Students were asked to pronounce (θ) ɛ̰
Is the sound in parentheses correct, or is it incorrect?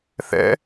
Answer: correct